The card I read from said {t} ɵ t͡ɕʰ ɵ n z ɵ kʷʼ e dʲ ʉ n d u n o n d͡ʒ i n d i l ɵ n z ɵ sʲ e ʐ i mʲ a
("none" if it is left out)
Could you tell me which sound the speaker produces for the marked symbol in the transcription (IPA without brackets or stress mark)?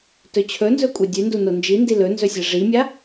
t